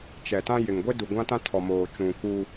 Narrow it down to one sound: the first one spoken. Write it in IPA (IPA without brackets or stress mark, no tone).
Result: t͡ʃ